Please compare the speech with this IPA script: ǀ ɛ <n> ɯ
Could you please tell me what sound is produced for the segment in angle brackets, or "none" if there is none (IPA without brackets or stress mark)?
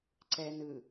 n